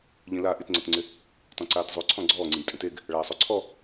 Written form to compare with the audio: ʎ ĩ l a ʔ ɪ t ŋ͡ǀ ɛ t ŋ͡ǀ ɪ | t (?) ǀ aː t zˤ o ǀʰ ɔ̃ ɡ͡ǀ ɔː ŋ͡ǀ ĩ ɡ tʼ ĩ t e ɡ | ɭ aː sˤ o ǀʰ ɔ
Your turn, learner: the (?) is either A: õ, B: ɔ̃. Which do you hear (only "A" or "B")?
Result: B